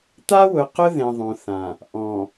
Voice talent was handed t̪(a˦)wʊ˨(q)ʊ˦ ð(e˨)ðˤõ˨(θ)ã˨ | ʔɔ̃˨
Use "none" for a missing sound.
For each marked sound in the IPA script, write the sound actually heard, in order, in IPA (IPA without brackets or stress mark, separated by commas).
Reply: a˦, q, ẽ˨, θ